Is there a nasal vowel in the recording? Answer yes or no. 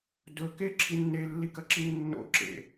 no